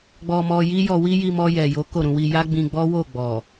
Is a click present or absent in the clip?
absent